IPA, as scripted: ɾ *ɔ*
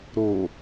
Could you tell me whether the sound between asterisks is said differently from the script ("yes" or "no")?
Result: yes